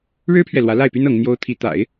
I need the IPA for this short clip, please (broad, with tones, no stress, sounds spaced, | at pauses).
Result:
ɻ ɻ̩˥ pʰ ɥ ɛ˨ l w ä˧˥ l a˥˩ ɪ̯ p y˥ n ɤ˧˥ ŋ n̪ j o˥ ʊ̯ t̪ʰ i˧˥ t̪ a̰˨˩˦ ɪ̯